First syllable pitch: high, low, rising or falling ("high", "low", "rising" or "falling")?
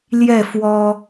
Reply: falling